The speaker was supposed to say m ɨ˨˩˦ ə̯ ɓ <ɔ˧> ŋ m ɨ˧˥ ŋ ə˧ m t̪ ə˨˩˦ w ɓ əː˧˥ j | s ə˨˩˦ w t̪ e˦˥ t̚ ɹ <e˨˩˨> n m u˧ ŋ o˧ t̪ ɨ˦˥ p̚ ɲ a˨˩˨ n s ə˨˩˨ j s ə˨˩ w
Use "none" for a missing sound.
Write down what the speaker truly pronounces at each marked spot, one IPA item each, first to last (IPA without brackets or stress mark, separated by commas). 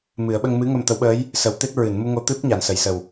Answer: ə˧, ɨ˨˩˨